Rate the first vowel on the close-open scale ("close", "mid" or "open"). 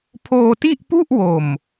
mid